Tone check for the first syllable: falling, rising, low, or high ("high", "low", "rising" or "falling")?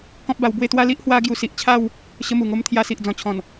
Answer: high